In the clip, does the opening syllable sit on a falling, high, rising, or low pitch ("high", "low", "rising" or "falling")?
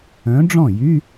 rising